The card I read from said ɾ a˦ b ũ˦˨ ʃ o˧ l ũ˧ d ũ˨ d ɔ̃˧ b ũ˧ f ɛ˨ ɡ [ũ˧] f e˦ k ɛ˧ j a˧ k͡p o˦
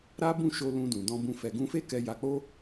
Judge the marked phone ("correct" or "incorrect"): correct